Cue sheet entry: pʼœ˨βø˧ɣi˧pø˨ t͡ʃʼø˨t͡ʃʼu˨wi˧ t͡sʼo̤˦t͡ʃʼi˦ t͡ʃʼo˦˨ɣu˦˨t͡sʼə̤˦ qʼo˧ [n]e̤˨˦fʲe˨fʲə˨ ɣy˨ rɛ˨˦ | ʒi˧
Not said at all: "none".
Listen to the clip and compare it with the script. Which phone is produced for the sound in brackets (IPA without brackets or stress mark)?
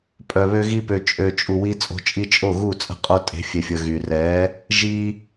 tʼ